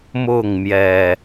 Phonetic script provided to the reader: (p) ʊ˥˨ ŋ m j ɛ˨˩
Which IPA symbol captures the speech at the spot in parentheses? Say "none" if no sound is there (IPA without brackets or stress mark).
m